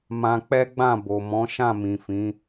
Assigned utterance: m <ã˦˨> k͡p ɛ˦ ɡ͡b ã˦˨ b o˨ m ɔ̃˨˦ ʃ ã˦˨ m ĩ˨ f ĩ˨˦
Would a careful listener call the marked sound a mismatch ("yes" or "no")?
yes